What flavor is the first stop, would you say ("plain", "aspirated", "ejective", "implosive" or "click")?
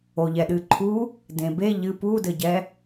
implosive